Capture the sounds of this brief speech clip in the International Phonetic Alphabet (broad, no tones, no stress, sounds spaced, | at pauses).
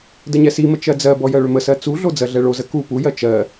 d ə ɲ ɛ s i m ə t͡ʃ ɜ d͡z ɜ b ɔ j ɜ ɭ ʏ m ə s ɜ t͡s u ɮ o d͡z ɜ ɮ ɛ ɭ o z ə k u p u j ɜ t͡ʃ ɜ